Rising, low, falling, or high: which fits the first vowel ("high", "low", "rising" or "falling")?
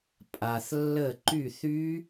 low